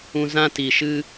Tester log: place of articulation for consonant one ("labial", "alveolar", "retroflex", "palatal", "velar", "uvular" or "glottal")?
alveolar